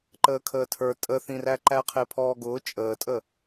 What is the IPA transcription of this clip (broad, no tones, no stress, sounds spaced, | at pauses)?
ǃ əː kʰ əː tʰ ə˞ tʼ ə θ ĩ r æ ǃ æ qʰ ɪː pʰ ɔː ɡ ʊː t͡ʃʼ əː tʼ ə